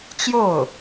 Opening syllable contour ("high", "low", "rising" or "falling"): falling